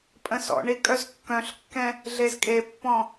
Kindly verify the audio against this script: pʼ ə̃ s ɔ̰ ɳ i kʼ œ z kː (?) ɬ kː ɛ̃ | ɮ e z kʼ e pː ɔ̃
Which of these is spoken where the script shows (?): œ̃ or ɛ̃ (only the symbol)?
œ̃